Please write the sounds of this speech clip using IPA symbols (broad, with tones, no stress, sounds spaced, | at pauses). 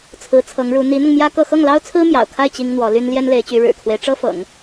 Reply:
t͡sʰ ɹ̩˧˥ t͡sʰ ɤ˧˥ ŋ ɻ u˧˥ n̪ i˧˥ n̪ ʊ˧ ŋ m j ä˥ k ɤ˥˧ x ɤ˥˩ ŋ l ɑ˥ ʊ̯ t͡sʰ ɹ̩˥ m j ɑ̰˨˩ ʊ̯ kʰ a˥˩ ɪ̯ t͡ɕ i˥ ŋ n̪ w ɔ˧˥ l y˥ n l j ɛ˥ n l e˧˥ ɪ̯ t͡ɕ y˧˥ ɻ ɻ̩˨˩ kʰ w e˦ ɪ̯ ʈ͡ʂ ɤ˥ f ɤ̰˨˩˦ ŋ